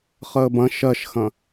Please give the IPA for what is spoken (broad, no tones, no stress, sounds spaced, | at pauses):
χ əː b ɐ̃ ʃ ɜ ʃ x ɐ̃